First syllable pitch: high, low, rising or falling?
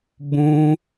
high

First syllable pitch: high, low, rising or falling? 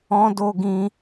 high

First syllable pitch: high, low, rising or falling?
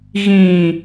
low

